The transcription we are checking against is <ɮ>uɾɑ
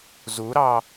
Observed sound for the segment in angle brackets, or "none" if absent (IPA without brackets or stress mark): z